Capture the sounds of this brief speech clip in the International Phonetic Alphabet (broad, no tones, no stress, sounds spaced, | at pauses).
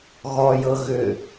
ɣ ɔ j ɤ ɣ ʏ